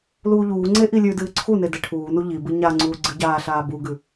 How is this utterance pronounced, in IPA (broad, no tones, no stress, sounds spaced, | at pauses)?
l uː ʎ uː ŋ͡ǀ e ʔ i lʲ ʉ d ɨː ǀʰ u n e d e ʈʰ uː n u ʎ i b ɨ ɲ a ŋ͡ǀ uː ɡ͡ǀ ɨ ɟ aː ɬ aː b u ɡ ʉ